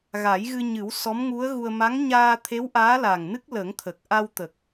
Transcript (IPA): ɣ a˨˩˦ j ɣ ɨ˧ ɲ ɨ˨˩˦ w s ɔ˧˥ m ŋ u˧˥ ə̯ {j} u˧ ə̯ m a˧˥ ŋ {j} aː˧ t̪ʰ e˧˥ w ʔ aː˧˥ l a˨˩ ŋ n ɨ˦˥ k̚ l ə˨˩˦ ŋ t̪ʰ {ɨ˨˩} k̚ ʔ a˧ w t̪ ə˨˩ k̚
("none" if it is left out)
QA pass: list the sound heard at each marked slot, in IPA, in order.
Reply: ɣ, ɲ, ə˨˩

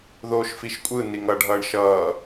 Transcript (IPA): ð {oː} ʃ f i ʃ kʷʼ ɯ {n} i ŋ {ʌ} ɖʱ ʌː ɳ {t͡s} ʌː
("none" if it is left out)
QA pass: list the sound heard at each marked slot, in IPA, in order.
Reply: oː, n, ʌ, ʃ

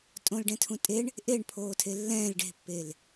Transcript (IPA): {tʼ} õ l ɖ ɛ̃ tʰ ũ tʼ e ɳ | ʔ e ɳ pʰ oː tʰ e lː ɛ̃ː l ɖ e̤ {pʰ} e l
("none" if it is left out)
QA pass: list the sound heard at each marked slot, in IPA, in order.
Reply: tʼ, pː

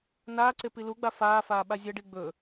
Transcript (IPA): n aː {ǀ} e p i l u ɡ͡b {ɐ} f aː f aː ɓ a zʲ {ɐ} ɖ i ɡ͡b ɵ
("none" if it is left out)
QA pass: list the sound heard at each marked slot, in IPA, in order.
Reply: ǀ, a, ɐ

